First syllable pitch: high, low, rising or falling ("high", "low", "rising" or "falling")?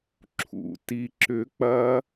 low